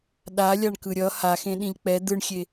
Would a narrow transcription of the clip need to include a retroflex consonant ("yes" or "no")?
yes